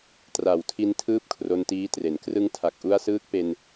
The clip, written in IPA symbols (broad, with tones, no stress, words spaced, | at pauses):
tra˨˩wtʰi˧n tʰɯː˥˩p̚kʰro˧ntiː˦˥tre˩˦n krɯ˧ŋtʰa˨˩k̚ ʔu˦˥a̯sɯː˦˥k̚pe˧n